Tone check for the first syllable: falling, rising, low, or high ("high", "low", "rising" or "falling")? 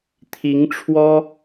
rising